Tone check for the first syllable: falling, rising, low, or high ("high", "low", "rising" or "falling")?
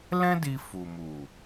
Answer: high